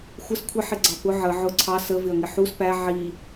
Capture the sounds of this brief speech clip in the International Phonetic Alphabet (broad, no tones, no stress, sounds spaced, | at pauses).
xʷ ə s kʷʰ ɪ ħ ɪ ɡ͡ǀ ɑ p ʊ ʕ ə ʕ ʊ ǀʰ ɑ s ə v ɪ ɐ̯ ŋ ɪ ħ u s p æ ʕ i